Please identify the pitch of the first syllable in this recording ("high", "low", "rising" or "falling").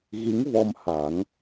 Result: rising